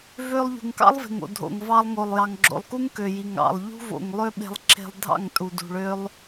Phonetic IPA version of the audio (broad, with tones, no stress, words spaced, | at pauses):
vø˧lˠ ʎṳ˨ŋkɑ̰˦lˠve̤˨ŋo̰˨ dʱo̰˨ŋ vɑ˧lˠŋo˨lˠ jɑ˨ŋɡ͡ǁo̰˨lˠku˦ŋ kø˨ji˨ŋ ɑ̰˨lˠ ʎṳ˦vo̰˨ŋlˠø˦ɓe̤˧lˠ ǁe̤˧lˠ dʱɑ̰˦˨ŋtʼu˨dṳ˨ ɭø˦lˠ